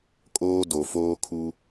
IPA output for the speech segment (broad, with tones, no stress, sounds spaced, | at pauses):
kʼ oː˦ d o˨ f oː˦ kʰ u˦